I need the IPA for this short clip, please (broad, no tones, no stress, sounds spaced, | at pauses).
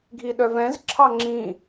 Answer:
ɡʱ i ɗ œ v ɛ̃ z ǁʰ ɑ ŋ͡ǁ ĩ